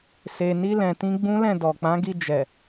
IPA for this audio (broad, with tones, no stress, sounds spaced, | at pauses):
s e˨ n i˧ l ɛ̃˨ t ĩ˧ ɡ͡b ũ˦ l ɛ̃˦˨ d ɔ˨ k͡p ã˨˦ ɡ i˧ d͡ʒ ɛ˨